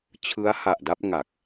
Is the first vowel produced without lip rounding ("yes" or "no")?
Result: yes